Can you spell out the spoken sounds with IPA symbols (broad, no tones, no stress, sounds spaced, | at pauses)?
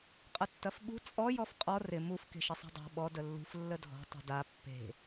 qʼ ɐ tː ɐ f ɓ ṳ t͡sʼ ɔ j ɔ f qʼ ɔ r ɪ m u f k e̤ ʃ ɪ sˤ a̤ dˤ a̤ ɓ ɔ d ə lː ṳ f lː ə dʱ ɔ̤ tˤ ṳ d a pː e̤